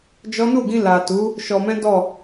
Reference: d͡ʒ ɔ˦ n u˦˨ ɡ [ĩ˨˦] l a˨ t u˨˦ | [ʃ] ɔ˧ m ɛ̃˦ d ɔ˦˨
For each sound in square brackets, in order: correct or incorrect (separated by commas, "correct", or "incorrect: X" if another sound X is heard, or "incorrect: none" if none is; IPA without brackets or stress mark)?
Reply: incorrect: ĩ˧, correct